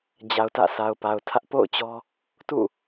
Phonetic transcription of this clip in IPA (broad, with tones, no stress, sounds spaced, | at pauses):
d͡ʑ a˨ ʊ̯ t ä̰˦˨ sʰ a˨ ʊ̯ p a˨ ʊ̯ tʰ ä˦ ʔ p o̰˦˨ ʊ̯ t͡ɕ ɔ˦ | t ṵ˦˨